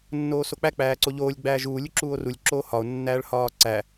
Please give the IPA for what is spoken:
nː oː s o k͡p æ k͡p æː ǀ o ʎ oː lʲ ɡ͡b æː ʒ uː lʲ u ǁ uː o̯ r u lʲ ǁ oː h ɒ o̯ nː æː ɭ h ɒː ǀ æ

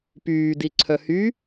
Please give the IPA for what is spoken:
p yː d i ǀʰ œ h y

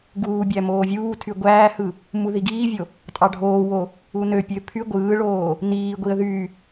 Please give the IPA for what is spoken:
ɡ uː bʲ æ m oː vʲ uː tʰ y ɡʷ æː h ɯ | m u ð i ɡ iː vʲ o | tʼ ɑ ɖʱ oː w o | u n ø pʲ ø pʰ y ɡʷ ɯː ɭ oː | n iː ɡʷ i ə̯ ð y

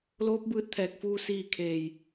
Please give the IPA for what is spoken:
l oː˧˥ p̚ b ɯː˧ t̚ t̪ʰ ɛː˧˩ k̚ f uː˧ s iː˥˨ kʰ eː˧˩ j

